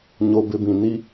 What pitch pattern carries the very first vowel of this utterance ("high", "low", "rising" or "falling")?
low